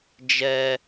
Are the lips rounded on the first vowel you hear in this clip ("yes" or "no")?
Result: no